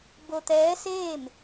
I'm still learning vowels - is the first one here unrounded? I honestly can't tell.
no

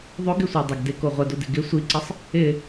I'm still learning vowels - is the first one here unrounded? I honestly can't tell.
no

